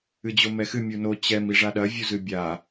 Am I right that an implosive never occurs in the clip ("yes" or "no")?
no